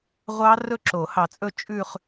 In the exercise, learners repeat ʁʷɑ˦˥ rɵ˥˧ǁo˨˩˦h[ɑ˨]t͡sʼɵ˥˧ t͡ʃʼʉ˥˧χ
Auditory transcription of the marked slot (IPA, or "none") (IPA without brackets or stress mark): ɑ˨